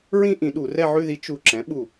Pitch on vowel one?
falling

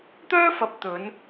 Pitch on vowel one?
high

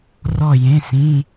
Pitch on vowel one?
falling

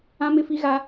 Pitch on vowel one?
high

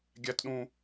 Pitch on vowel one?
high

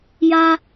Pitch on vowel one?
high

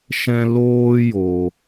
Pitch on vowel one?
high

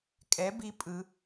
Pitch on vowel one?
rising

